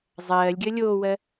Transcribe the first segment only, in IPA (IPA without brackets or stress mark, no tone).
zˤ